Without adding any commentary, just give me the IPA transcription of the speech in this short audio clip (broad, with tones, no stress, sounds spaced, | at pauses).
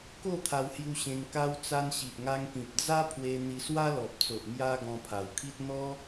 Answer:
k o˥˧ t̪ʰ a˧ w h j u˧ ɕ ẽ˧ ŋ k a˧ w t͡s a˧ n ɕ i˨ ʔ ŋ a˧ ŋ p ĩ˨ p̚ d͡z a˦ pʰ w e˧ n̪ i˧ s w a˦ l ɔ˨ p̚ t͡s o˨ ʔ m j a˧ ɡ ɔ̃˧ pʰ a˨˩ w kʰ i˦ t̚ n̪ ɔ˦